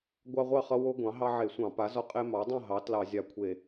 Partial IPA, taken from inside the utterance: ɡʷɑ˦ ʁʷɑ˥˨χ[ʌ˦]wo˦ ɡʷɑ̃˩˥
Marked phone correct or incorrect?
correct